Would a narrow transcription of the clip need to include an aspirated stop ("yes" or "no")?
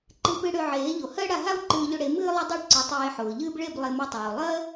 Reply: no